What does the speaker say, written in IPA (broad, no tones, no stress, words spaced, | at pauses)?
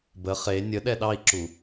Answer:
bə χe nʲə ɗɛɗɑi̯ǁu